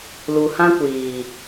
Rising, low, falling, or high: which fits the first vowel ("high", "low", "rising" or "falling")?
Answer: low